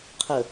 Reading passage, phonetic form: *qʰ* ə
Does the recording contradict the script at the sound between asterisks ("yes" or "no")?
no